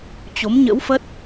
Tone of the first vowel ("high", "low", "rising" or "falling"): rising